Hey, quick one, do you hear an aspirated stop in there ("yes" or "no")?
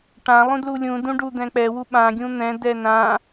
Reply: no